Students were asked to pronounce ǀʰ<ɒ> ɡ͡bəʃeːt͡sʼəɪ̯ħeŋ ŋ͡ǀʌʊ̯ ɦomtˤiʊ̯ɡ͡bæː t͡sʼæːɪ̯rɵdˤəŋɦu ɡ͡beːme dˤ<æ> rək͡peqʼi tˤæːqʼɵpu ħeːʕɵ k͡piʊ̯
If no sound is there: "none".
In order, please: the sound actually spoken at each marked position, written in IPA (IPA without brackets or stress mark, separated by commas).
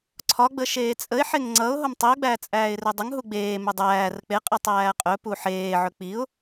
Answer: ɒ, æː